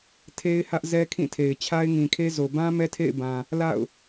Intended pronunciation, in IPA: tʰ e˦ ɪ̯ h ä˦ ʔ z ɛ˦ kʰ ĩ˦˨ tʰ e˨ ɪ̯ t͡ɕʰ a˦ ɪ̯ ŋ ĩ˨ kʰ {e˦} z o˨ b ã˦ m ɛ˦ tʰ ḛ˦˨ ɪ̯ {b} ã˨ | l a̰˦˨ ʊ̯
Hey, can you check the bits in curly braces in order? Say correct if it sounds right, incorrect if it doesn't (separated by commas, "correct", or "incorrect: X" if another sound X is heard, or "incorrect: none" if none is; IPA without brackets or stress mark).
correct, correct